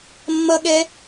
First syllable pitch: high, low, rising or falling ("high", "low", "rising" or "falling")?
high